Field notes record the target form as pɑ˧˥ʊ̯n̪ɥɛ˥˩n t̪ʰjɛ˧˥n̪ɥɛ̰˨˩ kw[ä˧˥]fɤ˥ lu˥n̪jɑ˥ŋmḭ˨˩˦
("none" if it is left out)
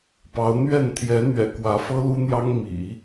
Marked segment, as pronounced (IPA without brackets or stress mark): ä˧˥